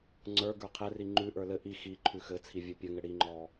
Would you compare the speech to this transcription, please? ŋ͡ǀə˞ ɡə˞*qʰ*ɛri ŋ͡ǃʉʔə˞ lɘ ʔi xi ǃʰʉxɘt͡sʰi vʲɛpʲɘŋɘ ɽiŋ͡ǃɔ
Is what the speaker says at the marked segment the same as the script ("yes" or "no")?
yes